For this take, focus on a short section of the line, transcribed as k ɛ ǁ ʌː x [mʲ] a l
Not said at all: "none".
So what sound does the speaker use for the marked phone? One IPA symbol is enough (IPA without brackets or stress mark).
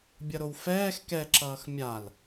mʲ